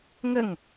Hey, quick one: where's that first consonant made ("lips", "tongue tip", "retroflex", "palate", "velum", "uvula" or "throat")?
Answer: velum